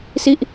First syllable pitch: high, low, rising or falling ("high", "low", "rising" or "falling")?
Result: falling